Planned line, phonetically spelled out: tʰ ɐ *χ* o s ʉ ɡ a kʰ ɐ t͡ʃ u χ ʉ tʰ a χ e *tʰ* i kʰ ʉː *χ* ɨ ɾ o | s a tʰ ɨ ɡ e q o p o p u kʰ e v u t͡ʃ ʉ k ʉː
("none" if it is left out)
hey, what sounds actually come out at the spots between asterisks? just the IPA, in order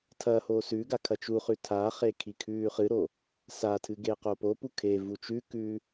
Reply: h, kʰ, χ

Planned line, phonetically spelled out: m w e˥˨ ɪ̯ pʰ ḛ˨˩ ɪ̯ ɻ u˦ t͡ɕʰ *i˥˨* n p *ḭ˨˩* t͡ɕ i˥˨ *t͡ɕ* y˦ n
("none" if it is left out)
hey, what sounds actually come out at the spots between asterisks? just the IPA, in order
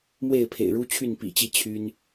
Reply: y˥˨, ḭ˨˩, t͡ɕʰ

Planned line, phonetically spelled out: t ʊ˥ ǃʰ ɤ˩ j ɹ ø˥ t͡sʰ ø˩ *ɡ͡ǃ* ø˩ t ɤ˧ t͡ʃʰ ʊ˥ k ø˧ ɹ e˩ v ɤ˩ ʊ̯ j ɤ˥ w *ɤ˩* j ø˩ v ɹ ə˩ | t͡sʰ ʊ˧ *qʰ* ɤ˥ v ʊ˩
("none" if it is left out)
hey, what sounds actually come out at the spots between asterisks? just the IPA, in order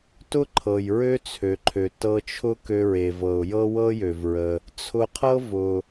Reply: ǃʰ, ɤ˥, qʰ

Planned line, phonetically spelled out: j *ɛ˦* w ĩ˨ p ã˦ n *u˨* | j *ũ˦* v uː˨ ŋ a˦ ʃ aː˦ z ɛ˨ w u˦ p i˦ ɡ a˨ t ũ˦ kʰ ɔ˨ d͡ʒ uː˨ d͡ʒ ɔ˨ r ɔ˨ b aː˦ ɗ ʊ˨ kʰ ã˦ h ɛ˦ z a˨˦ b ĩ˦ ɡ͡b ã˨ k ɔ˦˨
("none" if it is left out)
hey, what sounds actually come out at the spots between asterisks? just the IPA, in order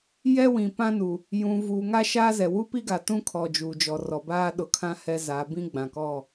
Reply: ɛ˦, u˨, ũ˨

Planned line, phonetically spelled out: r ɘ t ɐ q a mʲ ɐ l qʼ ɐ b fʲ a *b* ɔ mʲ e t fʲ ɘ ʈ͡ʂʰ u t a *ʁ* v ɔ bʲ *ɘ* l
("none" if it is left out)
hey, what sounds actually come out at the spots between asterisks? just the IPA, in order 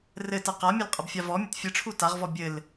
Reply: v, ʁ, ɘ

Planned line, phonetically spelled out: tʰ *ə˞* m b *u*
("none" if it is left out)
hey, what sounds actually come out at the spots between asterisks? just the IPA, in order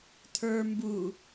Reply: ə˞, u

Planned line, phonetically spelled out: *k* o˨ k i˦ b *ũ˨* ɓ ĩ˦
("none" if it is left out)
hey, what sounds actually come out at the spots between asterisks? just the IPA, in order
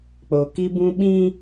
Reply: k͡p, ũ˦

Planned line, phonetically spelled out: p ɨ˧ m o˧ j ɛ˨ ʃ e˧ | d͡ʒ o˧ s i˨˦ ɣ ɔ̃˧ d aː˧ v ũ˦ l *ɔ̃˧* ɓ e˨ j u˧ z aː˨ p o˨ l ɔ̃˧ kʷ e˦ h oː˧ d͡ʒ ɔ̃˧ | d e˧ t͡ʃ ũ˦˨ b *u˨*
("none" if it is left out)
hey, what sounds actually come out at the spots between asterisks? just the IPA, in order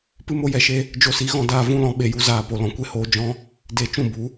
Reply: ɔ̃˧, u˨˦

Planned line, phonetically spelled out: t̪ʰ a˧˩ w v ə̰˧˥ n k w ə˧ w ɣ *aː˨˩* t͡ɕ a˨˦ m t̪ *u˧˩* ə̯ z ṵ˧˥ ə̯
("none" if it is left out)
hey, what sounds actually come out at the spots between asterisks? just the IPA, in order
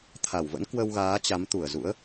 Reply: aː˨˦, u˧˩

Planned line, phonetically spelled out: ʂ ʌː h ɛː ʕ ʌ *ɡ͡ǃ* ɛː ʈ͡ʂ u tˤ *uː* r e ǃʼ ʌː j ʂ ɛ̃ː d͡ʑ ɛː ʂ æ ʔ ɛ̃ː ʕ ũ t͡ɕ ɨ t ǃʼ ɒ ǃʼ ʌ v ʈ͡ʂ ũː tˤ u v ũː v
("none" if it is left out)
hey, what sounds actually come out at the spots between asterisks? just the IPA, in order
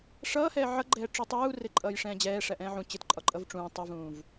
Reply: ɡ͡ǃ, uː

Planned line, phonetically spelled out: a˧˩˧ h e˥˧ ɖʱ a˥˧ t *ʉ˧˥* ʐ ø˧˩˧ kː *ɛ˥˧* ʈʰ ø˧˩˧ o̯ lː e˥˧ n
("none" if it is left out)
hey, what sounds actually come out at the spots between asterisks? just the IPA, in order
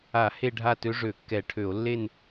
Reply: ø˧˥, ɛ˧˩˧

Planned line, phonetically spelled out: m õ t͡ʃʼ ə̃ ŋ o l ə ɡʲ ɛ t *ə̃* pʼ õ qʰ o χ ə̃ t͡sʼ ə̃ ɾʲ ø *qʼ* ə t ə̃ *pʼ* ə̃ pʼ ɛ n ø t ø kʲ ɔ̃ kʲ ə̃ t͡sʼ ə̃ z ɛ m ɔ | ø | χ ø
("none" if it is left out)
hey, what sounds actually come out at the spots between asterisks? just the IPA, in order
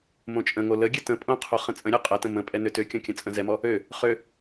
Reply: ə̃, qʼ, m

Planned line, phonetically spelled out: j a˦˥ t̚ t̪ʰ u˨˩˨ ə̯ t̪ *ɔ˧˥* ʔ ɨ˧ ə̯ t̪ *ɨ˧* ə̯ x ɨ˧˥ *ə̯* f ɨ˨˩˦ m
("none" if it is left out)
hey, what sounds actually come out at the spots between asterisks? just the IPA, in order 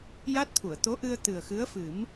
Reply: o˧˥, ɨ˨˩, ə̯

